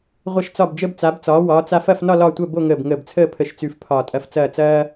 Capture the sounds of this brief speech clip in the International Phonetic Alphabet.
ʁʷ ɐ˧˩ ʃ t͡s ɒ˧˩ b d͡ʒ əː˧ b t͡s a˩˧ b t͡s ɒː˩˧ w ɒː˩˧ t͡s a˧ f ɐ˥˧ f n ɒ˥˧ l ɒ˥˧ tʷ ɐ˥˧ b o˥˧ ŋ əː˧˩ b ŋ əː˧˩ b t͡sʰ əː˥˧ pʰ ə˧˩ ʃ t͡s ʉ˧ f pʰ ɒː˧˩ tʼ ɐ˧ f t͡s ɐː˥˧ t͡s ɐː˥

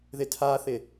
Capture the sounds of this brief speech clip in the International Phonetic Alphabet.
ð ɪ tʰ a θ ɪ

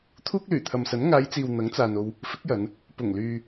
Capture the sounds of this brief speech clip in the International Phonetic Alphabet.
t̪ʰ uː˥ k̚ l yː˨˩ t̪ʰ ɐ˨ m s ɐ˨˥ n ŋ aː˨˧ j t͡s iː˨ w n̪ ɐ˨˥ ŋ t͡s aː˨ n o˧ w | f ɪ˨˥ k̚ j ɐ˨˧ n | p ʊ˨˩ ŋ l yː˨

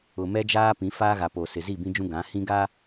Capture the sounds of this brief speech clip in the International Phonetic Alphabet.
ʊ˨ m ɛ˦ d͡ʒ aː˦ p ĩ˨˦ f aː˦ ɣ a˨ p o˨ s ɪ˨ z i˦˨ b ĩ˦ d͡ʒ ũ˦ ɡ ã˨˦ h ĩ˦ ɡ a˦

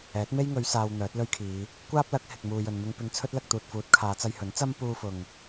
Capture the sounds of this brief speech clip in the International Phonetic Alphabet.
ɛː˨˥ t̚ m e˥ j ŋ ɵ˨˧ ɥ s aː˧ w n̪ œː˨˥ t̚ l ɵ˥ ɥ kʰ iː˨˧ | kʷ aː˥ p̚ l ɐ˨˥ k̚ h ɪ˨ k̚ m uː˨ j ɵ˨ n m ɪ˧ ŋ p ɪ˧ ŋ t͡sʰ ɵ˥ t̚ l ɐ˧ k̚ t̪ uː˨ t̚ f uː˨˥ t̚ kʰ aː˨˧ t͡s ɐ˧ j h ɵ˨˥ n t͡s ɐ˥ m p uː˧ f ʊ˨ ŋ

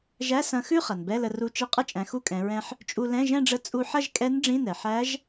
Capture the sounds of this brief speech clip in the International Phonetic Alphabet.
ʒ æ˧˥˧ s ɐ̃˧ x ʉ˥˧ χ ɐ˩ n b ɛ˧˥˧ l ə˧ r u˧˥ t͡ʃ i˧˥ qʼ ə˧˥˧ t͡ʃʼ æ̃˩˧ x u˧˥˧ kʼ ɛ̃˩˧ ɹ ɛ̃˧ ħ | t͡ʃʼ u˧ l ɛ̃˧˥˧ ʒ ɛ̃˥˧ ɖ͡ʐ ə˧˥ t͡sʼ u˧ ħ ɐ˥˧ ʒ kʼ ɛ˧˥ n ɖ͡ʐ ĩ˧˥˧ n ɛ˩ ħ æ˧˥ ʒ

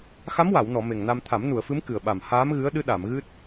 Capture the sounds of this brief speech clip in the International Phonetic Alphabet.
x a˧˥ m w a˨˩˨ w n ɔ˨˩˨ m e˨˩ ŋ n a˧ m t̪ʰ a˨˩˦ m n u˨˩˨ ə̯ f ɨ˧˥ m k ɨ˨˩ ə̯ ɓ a˨˩ m h aː˧˥ m ɣ ɨ˧˥ ə̯ ɗ ɨ˧˥ ɗ a˨˩˨ m ɣ ɨ˦˥ t̚

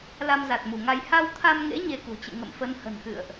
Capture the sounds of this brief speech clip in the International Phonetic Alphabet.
l a˧ m z a˨˩ t̚ m u˧˩ ŋ a˧ j h a˧ w t̪ʰ a˧ m ŋ ḛ˧˥ ɲ e˧ k ṳ˨˩ t͡ɕ ɨ̰˧˨ ŋ ə̰˧˨ m f ə˨˦ n h ə̤˨˩ n x ɨ̰˧˨ ə̯ ʔ

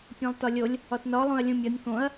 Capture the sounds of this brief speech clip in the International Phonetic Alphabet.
pʲ ẽ lˠ t ɒ lʲ o lʲ | ɒ t n ɒ lˠ õ ɐ̯ lʲ ũ mʲ ɒ nʲ k õ ɐ̯

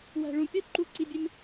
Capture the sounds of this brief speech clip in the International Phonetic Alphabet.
w æ̤˨ ɭ ũ˨ pʲ o˦ ǃ u˨ ǀ i˨ bʲ e˦ m

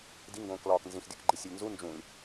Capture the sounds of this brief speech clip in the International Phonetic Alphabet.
d i ŋ ɡ õː k l ɒː k n z ĩ x dʲ u k ɡ͡ǃ i sʲ e lʲ n z u n d͡ʒ ũ lʲ

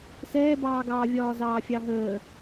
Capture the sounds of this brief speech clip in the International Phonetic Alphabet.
s ɛː b ɑː ɡ ɑː vʲ ɒː z ɑː fʲ ɑ ɦ əː

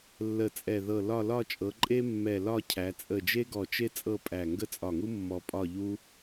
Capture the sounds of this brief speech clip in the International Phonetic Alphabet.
lː ə˧˩ t͡sʼ ɛ˧˩ ð ɤ˧˩ l ɒ˥˧ l ɒ˥˧ t͡ʃʼ ɤ˩˧ ǃʼ e˥ mː ɛ˧˩ l ɒ˥˧ cʰ æ˩˧ t͡sʼ ə˧˩ d͡ʒ e˥ ɡ ɔ˧˩ t͡ʃ e˥ t͡sʼ ɤ˥˧ pʼ æ˧˩ ŋ ɡ ə˥˧ t͡sʼ ɒ˧˩ ŋ u˥ mː ɔ˧ pʼ ɒ˥˧ ʎ u˥

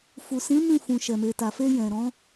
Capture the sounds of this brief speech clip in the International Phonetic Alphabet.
f u˨ s ĩ˨˦ m ĩ˦˨ f ũ˨ ʃ ɛ˨ m e˨ t a˨ f e˧ j ɛ̃˨ ɾ ɔ̃˨˦

